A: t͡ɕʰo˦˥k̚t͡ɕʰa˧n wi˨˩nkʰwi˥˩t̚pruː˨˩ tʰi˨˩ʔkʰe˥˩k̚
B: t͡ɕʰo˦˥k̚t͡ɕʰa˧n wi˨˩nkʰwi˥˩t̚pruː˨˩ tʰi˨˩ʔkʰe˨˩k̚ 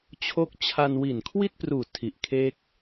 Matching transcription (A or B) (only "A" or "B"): A